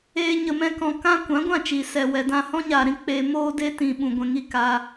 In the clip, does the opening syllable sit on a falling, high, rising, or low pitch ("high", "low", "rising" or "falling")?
high